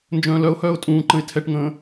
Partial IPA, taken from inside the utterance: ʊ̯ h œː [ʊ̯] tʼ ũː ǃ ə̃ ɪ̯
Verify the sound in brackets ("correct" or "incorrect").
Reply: correct